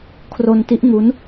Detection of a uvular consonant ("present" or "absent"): absent